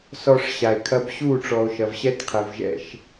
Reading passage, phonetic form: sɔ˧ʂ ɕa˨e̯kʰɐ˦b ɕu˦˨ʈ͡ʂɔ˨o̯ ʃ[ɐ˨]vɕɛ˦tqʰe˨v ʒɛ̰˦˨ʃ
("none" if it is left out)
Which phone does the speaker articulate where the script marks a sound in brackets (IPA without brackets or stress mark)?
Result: ɐ˨